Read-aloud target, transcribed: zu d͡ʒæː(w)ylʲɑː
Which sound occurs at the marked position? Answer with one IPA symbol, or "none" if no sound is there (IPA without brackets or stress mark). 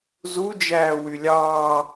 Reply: w